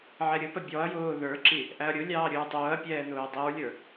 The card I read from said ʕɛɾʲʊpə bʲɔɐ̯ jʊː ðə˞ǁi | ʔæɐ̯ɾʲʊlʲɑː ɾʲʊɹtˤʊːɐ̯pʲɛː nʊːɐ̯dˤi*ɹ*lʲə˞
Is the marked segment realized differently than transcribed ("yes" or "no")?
no